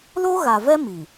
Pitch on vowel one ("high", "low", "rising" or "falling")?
high